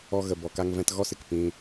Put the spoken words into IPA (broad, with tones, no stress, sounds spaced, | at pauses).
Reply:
ɔ˧ ɣ ə˨ b ɔ˨ k a˧ ŋ v ɛ̃˧ t ɣ ɔ˦ s ɨ˨ k p ĩ˧